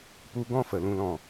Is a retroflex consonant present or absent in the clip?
absent